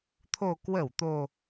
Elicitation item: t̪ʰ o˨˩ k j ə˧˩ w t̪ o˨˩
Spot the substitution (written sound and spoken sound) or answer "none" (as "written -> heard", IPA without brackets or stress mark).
j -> w